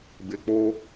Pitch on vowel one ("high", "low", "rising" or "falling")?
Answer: low